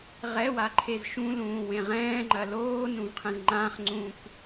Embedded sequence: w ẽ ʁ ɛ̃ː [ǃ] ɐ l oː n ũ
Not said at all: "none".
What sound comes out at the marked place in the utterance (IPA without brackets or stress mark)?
ŋ͡ǃ